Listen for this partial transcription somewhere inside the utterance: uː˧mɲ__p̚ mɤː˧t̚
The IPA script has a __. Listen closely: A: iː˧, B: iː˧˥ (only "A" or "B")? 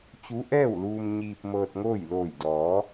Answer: A